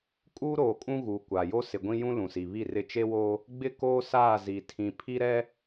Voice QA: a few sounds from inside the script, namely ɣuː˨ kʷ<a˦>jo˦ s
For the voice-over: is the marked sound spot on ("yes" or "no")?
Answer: no